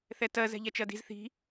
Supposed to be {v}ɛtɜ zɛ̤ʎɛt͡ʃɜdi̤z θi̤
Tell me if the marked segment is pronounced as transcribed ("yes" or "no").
no